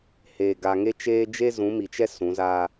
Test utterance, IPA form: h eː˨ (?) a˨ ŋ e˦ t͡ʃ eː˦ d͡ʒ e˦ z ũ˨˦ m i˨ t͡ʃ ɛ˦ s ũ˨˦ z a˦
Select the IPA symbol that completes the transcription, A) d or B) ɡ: B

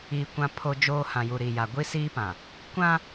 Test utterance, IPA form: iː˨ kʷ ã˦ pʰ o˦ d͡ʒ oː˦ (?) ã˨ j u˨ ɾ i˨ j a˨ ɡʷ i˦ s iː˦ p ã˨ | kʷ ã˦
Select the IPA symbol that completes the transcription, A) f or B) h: B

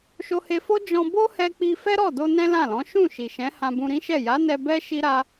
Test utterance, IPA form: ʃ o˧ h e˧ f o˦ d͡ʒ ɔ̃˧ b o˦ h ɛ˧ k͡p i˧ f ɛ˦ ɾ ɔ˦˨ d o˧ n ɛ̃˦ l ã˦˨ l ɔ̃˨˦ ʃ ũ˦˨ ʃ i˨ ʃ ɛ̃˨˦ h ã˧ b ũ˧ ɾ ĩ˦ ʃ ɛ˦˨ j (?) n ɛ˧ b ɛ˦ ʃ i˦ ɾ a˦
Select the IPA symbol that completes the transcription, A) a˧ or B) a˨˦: B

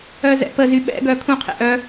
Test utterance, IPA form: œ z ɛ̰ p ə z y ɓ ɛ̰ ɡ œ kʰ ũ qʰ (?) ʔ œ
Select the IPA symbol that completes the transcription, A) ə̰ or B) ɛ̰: B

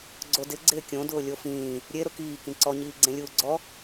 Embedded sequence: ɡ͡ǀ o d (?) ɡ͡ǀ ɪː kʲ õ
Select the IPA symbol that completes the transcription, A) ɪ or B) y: A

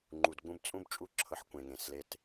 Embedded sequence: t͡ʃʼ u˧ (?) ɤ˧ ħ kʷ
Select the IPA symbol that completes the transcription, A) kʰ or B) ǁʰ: B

